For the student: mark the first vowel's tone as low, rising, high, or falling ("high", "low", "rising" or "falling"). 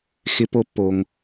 rising